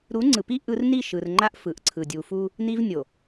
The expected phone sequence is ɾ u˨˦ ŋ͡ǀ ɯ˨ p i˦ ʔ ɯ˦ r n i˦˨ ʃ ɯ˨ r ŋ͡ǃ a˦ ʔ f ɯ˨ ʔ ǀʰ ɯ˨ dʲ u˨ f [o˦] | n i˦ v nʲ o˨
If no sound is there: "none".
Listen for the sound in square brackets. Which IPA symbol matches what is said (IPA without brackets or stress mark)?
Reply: u˦